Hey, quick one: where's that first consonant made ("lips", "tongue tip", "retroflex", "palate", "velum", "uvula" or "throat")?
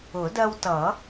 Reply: tongue tip